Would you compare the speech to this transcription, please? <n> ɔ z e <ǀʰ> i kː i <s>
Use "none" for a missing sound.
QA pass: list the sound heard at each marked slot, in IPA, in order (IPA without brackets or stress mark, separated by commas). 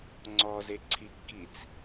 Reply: ŋ͡ǀ, ǀʰ, t͡s